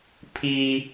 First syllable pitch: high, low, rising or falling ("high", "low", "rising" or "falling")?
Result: high